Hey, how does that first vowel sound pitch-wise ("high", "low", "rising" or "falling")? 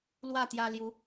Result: falling